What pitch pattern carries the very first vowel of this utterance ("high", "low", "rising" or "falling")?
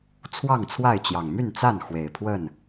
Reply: falling